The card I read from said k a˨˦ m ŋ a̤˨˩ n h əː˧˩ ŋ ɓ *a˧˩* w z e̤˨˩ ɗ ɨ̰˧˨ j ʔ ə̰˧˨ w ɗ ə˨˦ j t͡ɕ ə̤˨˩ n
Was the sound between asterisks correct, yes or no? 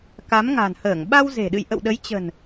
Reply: no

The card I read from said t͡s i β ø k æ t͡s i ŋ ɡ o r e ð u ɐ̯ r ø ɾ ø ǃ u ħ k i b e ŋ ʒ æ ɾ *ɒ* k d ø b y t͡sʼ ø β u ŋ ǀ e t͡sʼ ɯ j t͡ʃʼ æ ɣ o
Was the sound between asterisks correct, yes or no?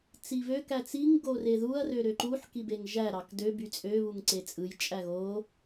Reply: no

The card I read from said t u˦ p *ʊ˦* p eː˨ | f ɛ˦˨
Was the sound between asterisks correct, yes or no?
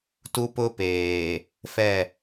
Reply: yes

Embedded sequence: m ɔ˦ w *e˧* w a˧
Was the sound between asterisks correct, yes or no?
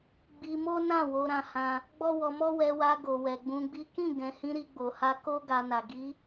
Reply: no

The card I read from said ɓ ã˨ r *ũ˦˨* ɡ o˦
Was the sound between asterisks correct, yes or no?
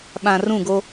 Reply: yes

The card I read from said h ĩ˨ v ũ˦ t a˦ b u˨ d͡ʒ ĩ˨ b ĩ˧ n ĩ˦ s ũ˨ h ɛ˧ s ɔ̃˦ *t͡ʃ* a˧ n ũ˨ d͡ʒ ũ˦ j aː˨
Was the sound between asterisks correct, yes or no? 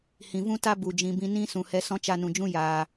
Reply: yes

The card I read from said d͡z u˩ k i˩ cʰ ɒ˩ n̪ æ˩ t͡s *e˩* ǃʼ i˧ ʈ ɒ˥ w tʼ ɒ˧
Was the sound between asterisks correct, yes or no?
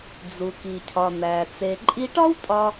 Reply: yes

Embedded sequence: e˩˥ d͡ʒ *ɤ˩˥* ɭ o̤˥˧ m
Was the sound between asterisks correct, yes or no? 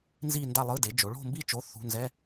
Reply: no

